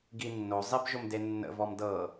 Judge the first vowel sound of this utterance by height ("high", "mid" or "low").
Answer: high